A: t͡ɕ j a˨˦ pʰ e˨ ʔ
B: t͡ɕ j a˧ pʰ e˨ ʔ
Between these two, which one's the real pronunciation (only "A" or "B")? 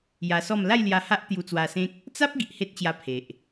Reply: B